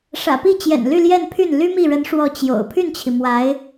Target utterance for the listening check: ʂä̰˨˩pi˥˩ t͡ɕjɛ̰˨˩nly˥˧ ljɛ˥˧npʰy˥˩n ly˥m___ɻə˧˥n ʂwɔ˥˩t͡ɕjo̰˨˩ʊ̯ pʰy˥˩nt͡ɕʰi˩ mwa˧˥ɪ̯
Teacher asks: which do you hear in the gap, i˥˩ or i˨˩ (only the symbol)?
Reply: i˥˩